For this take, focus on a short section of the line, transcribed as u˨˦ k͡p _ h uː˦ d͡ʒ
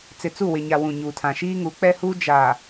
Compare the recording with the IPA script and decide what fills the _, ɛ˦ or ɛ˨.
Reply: ɛ˦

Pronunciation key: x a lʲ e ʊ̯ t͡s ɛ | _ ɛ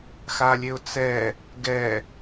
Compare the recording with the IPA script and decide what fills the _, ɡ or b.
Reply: ɡ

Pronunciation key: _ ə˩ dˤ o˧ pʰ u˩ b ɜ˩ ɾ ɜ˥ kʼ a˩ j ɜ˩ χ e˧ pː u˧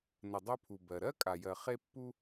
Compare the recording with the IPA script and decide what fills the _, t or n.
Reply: n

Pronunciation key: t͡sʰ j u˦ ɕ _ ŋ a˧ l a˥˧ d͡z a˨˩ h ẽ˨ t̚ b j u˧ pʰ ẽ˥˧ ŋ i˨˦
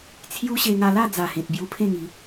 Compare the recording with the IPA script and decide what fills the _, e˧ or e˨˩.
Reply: e˧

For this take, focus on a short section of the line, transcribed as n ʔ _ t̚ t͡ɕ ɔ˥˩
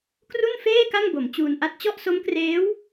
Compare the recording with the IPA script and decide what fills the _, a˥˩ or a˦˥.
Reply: a˥˩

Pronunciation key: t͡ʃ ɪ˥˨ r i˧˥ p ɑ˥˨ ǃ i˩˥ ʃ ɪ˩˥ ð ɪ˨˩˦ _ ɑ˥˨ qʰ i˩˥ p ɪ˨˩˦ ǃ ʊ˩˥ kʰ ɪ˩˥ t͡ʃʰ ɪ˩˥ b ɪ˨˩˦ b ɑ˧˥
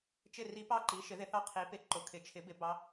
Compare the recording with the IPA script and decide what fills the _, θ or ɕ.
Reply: θ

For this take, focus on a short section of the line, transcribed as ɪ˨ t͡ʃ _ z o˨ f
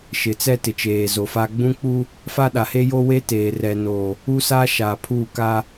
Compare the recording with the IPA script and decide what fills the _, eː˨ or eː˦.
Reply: eː˨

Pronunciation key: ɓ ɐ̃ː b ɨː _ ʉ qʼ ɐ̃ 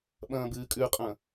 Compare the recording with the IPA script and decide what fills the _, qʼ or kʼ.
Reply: kʼ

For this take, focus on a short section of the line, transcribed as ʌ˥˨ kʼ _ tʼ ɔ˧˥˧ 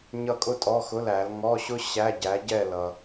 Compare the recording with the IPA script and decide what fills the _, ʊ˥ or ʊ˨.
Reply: ʊ˥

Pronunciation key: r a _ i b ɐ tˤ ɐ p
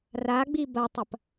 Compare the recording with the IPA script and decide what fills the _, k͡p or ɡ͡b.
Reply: ɡ͡b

